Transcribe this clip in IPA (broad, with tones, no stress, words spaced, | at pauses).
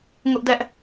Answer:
ŋʊ˦ʔdɛ˦ʔ